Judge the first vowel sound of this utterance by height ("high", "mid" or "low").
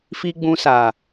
high